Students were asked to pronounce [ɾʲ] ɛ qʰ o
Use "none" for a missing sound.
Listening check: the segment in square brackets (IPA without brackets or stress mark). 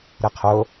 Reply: ɾ